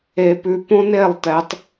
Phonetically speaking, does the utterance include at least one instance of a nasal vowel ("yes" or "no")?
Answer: yes